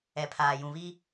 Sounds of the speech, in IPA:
ɛ˨ pʰ aː˨ j ũ˨ β i˦

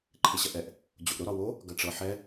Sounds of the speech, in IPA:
ǃʰ e ɕ ɐ ʔ ɛ ʔ | d͡ʑ o ʔ ɾ ʊ ɾ ɒ w o | ɡ ɐ ʈ͡ʂ ɤ ħ ɛ

